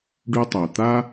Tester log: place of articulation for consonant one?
retroflex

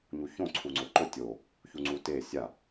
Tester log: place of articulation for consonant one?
palatal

